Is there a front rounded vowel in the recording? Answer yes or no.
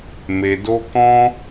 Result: no